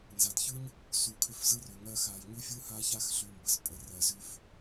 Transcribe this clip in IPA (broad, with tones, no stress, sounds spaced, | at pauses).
n z a˨ d ç ɯ˦ ɲ | s u˨ kʰ ʏ˧ f z ɯ˦ r ʏ˨ ŋ ɜ˦ x a˧ j ɲ ʉ˦ fʲ ɯ˦ h a˦ ç a˦ x ɬ ʉ˦ m b ə˧ s pʼ ə˧ r ɜ˧ z ʉ˦ f